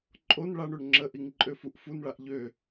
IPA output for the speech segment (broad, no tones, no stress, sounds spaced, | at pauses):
ǃʼ o n ɭ a ɳ ø ɳ ŋ͡ǁ ə ʔ i ŋ ǃʼ ø f u ʔ f u n ɭ a ʔ ʎ ø